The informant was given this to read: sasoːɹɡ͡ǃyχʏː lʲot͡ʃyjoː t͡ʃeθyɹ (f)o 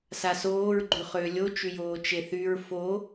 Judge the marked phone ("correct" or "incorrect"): correct